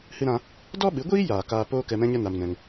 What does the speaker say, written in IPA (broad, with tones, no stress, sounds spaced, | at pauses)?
h ɨ˦ ɾ ã˦ | d ɔ˦ ɓ ɨ˨˦ ɡʷ iː˦ j aː˨ k aː˧ p oː˦ k ɛ˧ m ɛ̃˦ ɲ ə˦ n a˧ m n ɛ̃˧ ŋ